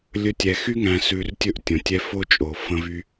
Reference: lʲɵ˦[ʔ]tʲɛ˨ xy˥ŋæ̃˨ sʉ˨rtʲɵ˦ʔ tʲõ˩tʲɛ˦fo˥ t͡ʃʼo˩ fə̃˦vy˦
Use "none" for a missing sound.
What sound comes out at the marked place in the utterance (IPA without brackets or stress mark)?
none